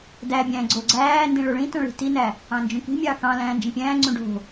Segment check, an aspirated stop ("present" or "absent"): absent